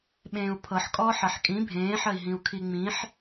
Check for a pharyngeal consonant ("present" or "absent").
present